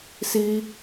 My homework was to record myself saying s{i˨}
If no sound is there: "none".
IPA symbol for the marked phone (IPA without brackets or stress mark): i˦